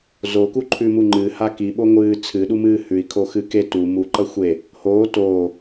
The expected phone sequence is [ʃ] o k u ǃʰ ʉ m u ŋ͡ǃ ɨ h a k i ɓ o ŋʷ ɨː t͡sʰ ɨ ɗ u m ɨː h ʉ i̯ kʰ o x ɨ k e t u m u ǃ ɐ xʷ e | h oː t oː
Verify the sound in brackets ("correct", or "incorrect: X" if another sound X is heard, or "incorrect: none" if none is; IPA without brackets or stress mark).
incorrect: z